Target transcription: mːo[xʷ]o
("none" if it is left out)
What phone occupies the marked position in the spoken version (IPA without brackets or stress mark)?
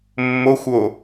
xʷ